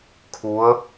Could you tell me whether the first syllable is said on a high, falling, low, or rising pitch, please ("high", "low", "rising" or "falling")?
rising